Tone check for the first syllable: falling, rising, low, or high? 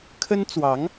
high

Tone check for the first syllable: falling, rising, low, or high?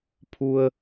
low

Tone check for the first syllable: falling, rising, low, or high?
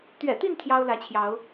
low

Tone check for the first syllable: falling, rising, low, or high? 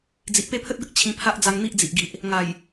low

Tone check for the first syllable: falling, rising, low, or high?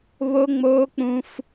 high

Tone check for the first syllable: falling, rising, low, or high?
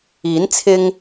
rising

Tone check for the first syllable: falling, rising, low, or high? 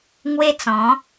high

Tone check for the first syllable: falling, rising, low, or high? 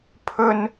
high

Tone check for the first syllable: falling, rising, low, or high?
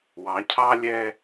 rising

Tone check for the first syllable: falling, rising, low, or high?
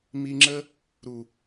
high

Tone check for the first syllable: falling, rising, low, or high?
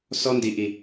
high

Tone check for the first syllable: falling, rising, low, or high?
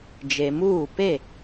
low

